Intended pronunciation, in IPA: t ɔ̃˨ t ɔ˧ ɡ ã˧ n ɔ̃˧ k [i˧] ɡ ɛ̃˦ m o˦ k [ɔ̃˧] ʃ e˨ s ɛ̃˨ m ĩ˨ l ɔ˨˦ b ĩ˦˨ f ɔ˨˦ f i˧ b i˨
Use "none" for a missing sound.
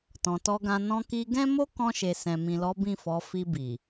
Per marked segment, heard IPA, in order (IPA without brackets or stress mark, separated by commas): i˧, ɔ̃˧